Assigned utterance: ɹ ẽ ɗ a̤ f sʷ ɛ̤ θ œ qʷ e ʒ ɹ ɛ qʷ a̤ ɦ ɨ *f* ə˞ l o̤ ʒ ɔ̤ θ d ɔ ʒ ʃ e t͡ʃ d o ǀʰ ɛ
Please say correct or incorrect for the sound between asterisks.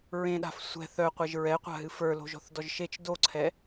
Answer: correct